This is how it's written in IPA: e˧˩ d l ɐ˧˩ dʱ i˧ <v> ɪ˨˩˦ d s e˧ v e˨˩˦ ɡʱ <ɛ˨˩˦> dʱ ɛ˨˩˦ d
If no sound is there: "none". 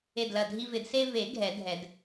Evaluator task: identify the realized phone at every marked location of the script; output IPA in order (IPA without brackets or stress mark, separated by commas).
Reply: v, ɛ˨˩˦